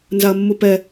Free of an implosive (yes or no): yes